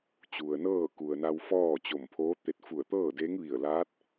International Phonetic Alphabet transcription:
t͡ɕu˩ə̯nɤː˥˨ku˩ə̯na˧w fɔː˥˨t͡ɕo˧˩mpʰoː˧˥t̪e˧t̚ fu˧˩ə̯t̪ɤː˥˨de˧˥ŋ ʋi˧˩ə̯laː˧˥t̚

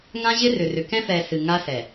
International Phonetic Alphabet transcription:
ŋã˦ʑɪ˦rʏ˨rʏ˨ kɛ̃˦fɛ˨ sɨ˨ ŋa˦sɛ˨

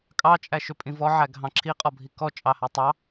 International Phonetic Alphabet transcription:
kʼɑ t͡ʃʼæʃʏpʼĩvɔ ʕæɡʱɑ̃ǁʰi qʼɔbʱikɔ t͡ʃʼɑhætˤɑ

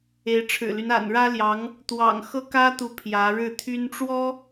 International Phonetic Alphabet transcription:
e˧˥ɪ̯ʈ͡ʂʰɻ̩˨˩ly˦n a̰˨˩nɻä˥ljɑ˧˥ŋ | t̪wɑ̰˨˩ŋxɤ˥kä˥t̪u˧˥ pʰjä˧˥ ɻɻ̩˥˩t̪ʰy˥n ʈ͡ʂwɔ˥

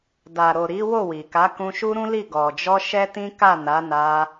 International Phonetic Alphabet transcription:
da˨ɾo˨ ɾi˨˦ wo˦˨wi˨ka˨˦ kũ˧ʃu˦ɾũ˦li˦˨ ɡɔ˨d͡ʒɔ˧ ʃɛ˦tĩ˦ ka˦˨na˨˦na˧

